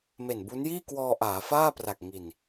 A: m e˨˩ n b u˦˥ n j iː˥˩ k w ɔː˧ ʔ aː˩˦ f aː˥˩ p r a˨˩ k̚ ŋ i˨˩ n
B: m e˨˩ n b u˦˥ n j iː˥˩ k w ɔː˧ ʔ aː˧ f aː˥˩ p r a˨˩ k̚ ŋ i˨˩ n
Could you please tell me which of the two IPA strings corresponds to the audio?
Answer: A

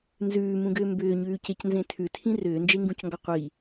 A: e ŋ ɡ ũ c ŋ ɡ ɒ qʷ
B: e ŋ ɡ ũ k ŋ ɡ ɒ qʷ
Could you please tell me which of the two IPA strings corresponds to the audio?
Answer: A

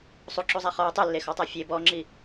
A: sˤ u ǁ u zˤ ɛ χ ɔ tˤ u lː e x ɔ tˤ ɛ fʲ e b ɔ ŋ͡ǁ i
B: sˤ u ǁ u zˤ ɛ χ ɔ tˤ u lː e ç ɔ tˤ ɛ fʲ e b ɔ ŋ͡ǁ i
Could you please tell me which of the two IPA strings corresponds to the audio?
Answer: A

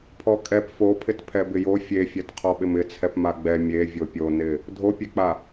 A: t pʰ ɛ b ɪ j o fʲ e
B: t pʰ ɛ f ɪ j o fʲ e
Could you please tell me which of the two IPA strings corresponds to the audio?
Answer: A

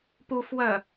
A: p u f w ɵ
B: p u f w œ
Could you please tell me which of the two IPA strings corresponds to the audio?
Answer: B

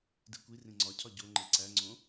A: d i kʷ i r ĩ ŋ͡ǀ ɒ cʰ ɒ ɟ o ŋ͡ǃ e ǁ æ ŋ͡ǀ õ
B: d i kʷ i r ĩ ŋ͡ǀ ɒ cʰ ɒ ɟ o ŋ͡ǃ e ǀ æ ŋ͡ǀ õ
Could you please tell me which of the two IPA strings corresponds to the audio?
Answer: B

